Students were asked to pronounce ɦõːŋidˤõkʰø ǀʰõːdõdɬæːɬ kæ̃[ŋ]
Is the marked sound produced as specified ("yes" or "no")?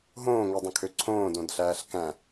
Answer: no